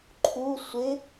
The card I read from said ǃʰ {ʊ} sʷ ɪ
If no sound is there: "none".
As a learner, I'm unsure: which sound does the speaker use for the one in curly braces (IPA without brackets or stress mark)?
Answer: u